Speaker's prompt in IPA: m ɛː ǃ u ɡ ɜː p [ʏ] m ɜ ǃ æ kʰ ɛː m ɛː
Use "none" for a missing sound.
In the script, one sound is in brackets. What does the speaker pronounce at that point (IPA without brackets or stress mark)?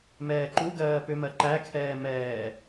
ʏ